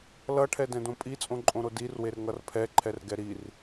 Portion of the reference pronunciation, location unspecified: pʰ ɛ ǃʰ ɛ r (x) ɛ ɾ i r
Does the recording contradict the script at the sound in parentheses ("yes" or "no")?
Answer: yes